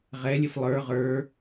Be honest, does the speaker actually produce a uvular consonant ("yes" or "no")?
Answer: yes